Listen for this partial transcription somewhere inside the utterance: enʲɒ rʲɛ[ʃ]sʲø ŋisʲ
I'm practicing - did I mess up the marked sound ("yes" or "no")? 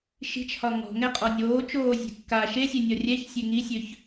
yes